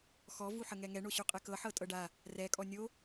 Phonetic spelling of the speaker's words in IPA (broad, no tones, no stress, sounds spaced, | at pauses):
x ɔ v u ħ ə ŋ ɛ ŋ ɛ ɳ o ɕ u qʼ ɛ k ɤ ħ ɤ tʼ ɤ ɖ a | r ɛ kʼ ɔ nʲ o